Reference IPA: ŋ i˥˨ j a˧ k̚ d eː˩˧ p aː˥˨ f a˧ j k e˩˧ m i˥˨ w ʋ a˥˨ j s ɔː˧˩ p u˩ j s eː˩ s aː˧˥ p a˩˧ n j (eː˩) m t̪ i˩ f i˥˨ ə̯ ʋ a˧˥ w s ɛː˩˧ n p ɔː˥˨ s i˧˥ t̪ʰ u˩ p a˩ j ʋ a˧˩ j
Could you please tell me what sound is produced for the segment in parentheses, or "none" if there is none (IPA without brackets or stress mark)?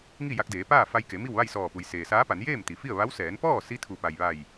eː˥˨